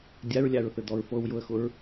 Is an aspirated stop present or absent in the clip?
absent